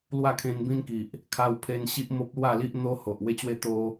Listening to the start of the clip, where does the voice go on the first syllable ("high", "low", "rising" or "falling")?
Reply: falling